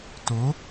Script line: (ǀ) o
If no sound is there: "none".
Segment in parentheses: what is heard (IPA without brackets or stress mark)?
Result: t